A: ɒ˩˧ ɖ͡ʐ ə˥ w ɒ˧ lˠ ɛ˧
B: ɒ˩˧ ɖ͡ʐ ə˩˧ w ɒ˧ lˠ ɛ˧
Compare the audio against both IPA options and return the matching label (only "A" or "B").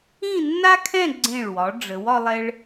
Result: B